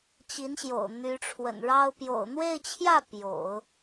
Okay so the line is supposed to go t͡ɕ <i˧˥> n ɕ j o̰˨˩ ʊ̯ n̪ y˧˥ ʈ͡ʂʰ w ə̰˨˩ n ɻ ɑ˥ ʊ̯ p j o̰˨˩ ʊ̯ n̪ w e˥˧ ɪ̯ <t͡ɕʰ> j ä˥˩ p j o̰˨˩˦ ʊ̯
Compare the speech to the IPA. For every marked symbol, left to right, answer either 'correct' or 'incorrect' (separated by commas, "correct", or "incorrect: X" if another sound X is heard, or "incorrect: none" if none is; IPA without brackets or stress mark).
correct, correct